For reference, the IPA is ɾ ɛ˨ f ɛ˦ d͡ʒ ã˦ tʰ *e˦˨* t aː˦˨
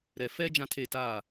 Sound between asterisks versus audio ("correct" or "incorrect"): correct